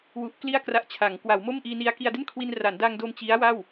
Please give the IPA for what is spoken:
w u˦˥ ʔ k l i˥˩ a̯ k r a˦˥ ʔ t͡ɕʰ a˩˦ ŋ k w a˩˦ w m o˥˩ m ʔ iː˧ n i˧ a̯ k i˧ a̯ d e˥˩ n kʰ w i˧ n r a˩˦ n d a˧ ŋ d o˧ m t͡ɕ i˦˥ a̯ w a˥˩ w

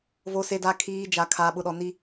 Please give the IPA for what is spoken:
v o˨ s e˨ d a˨ kʰ iː˨ d͡ʒ a˨ kʰ aː˨ ɓ ʊ˨ ɗ ɔ˨ n i˦

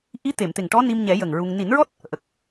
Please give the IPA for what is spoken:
ʔ i˧˥ t̪ e˨˩˨ m t̪ e˨˩ ŋ ʈ ɔ˧˥ n i˧ m ɲ ɛ˨˩˦ j ə˨˩ ŋ ɹ u˧ ŋ n i˨˩˦ n ɹ ɔ˦˥ t̚ | ʔ ə˨˩ k̚

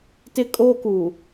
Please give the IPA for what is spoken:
t ɪ˦ kʼ o˦ k uː˨

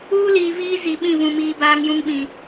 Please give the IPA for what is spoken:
uː˦ l iː˨ v iː˦ z i˨ ɓ ĩ˦˨ v ũ˨ m iː˨ b aː˦ ŋ j ũ˦ ŋ ɓ ĩ˨

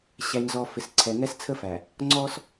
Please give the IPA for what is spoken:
ɕ æ˨ ɲ z ɔ˨ f ɪ˨ s ǀʰ ɛ˨ ŋ ɛ˦ s t͡sʰ ə˦ f æ˨ | ŋ͡ǀ ɔ˦ s

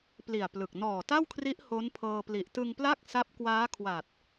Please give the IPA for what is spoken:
p l i˨˩ a̯ p l ɯ˨˩ k̚ n ɔː˨˩ t a˥˩ w kʰ r i˦˥ ʔ h o˦˥ n pʰ ɤː˧ p l i˨˩ ʔ t ɯ˧ ŋ p l a˥˩ k̚ s a˦˥ p̚ k w aː˦˥ kʰ w a˨˩ t̚

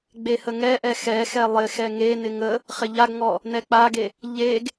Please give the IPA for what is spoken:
ɡ͡b e h ə ŋ ɛ ʔ ɛ x ɛ x ɛ lˠ ɪ x ɛ ŋ e n ɪ ŋ ə | χ ɪ ʎ a ɡ ŋ ɔ | n ɛ k͡p a ɡ e | ʎ e ɡ

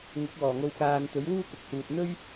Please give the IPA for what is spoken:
ŋ ʊ˨˥ k̚ w ɔː˨˩ ŋ o˧ w k aː˨ n t̪ ɵ˨˥ ɥ w uː˥ k ʊ˨ k̚ h uː˨ t̚ n̪ ɵ˥ ɥ

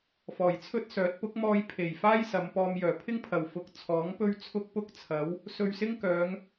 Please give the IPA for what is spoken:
f ɔː˨˩ j t͡sʰ ɵ˥ t̚ s œː˨˥ t̚ p ʊ˨˥ k̚ m ɔː˧ j pʰ e˨˩ j f aː˥ j s ɐ˨˧ m p ɔː˧ m j œː˨˩ pʰ ɪ˥ ŋ pʰ ɐ˨˩ w f ʊ˨ k̚ t͡sʰ ɔː˨˥ ŋ p ɵ˥ ɥ t͡sʰ ʊ˥ k̚ p ʊ˥ k̚ t͡sʰ ɐ˨˥ w | s ɵ˧ ɥ s ɪ˥ ŋ k œː˨˧ ŋ

